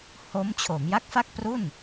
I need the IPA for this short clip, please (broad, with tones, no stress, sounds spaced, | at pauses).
h o˦˥ m t͡ɕʰ o˩˦ m j a˦˥ k̚ f a˥˩ k̚ p r u˥˩ n